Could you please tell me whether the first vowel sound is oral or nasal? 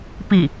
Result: oral